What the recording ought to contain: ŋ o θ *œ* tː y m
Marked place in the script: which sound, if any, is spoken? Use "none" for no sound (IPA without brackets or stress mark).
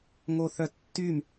œ